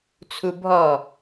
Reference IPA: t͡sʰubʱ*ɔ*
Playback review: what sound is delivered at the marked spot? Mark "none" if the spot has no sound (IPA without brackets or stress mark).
ɔ